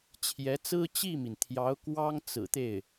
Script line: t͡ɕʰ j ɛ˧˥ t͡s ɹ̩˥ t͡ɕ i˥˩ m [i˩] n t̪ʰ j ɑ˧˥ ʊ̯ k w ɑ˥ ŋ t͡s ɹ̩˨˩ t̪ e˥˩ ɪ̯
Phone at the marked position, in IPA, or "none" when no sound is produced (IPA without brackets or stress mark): i˩